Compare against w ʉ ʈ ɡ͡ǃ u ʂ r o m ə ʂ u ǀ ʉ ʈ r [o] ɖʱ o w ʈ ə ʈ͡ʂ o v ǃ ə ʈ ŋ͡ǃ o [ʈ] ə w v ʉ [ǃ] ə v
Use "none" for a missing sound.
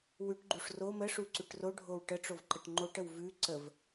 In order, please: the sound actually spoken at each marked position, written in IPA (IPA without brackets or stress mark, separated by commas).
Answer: o, ʈ, ǀ